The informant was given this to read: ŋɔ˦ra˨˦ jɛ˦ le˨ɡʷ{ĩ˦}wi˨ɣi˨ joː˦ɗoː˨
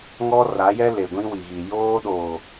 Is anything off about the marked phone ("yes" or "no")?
no